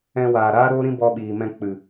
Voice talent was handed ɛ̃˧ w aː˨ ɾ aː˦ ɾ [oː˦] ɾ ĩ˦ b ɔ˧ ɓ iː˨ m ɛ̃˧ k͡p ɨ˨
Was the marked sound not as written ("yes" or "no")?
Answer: no